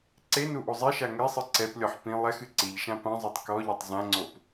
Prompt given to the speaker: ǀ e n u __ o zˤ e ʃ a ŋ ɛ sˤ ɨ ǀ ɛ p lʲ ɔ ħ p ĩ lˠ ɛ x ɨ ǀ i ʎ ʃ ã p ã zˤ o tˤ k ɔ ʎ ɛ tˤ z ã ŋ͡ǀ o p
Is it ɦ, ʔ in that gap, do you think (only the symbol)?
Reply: ʔ